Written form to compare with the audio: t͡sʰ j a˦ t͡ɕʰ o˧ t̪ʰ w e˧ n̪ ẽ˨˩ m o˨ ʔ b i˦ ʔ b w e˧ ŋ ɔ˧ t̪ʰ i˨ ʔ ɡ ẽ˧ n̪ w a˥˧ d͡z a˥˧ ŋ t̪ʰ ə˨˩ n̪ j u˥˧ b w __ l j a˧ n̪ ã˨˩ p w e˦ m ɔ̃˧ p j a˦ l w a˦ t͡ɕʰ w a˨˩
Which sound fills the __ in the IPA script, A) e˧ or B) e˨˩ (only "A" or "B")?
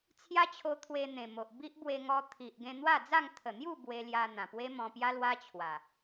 A